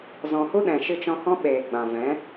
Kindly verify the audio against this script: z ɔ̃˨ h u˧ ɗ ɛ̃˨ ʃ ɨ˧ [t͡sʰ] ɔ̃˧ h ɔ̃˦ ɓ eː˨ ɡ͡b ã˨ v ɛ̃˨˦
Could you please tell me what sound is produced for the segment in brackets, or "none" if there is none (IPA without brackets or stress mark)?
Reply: t͡ʃ